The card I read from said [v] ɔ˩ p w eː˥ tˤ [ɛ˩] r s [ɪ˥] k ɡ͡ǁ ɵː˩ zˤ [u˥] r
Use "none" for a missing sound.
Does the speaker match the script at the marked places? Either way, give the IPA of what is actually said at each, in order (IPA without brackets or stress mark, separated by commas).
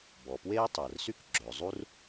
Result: b, ɜ˩, y˥, u˥